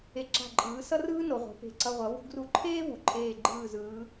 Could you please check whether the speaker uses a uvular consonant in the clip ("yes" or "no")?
yes